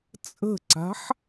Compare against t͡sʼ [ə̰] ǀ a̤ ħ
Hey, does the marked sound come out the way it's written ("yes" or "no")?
no